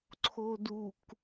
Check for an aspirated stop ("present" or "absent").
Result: present